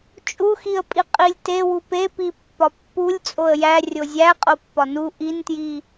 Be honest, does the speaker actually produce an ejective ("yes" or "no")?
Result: yes